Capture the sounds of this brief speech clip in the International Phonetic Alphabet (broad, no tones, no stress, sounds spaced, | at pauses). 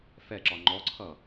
f ɛ ǁ ɒ ŋ͡ǃ ɔ ǀʰ ʌ